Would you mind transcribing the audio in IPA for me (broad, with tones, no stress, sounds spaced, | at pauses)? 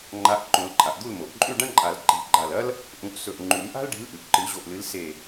ŋ͡ǃ a˨˦ ʔ ǃ õ˨˩˦ l ǃʼ a˩ ʔ d̪ u˥˨ l m o˩ ʔ ǃʼ ʉ˥˨ ɖ ɐ̃˥ ǃʼ a˨˩˦ l ǃ i̤˨˩˦ ɡ͡ǃ a˧˩ l ɐ˥ l | ʔ ũ˨˩˦ ʔ s ɵ˧˩ ʔ ŋ͡ǃ ʉ˨˩˦ m ʔ a̤˥ l ɖ i̤˨˦ l ʔ ʉ˩ ʔ ǃ ɨ˨˩˦ ʑ o˧˩ ʔ l ɨ˨˦ l s e˧˩